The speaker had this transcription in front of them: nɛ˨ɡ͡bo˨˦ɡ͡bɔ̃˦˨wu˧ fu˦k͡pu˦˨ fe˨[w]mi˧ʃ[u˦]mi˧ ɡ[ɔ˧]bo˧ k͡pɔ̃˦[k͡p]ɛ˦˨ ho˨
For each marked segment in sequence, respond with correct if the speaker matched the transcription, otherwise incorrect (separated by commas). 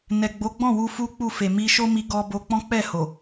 incorrect, incorrect, correct, correct